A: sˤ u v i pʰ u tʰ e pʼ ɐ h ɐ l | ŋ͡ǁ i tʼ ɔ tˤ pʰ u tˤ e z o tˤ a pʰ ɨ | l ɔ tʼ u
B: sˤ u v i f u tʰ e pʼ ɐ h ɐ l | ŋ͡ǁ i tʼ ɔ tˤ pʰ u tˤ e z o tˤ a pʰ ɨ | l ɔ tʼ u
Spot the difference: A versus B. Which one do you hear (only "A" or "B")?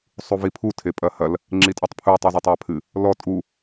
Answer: A